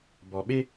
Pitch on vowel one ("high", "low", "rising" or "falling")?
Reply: low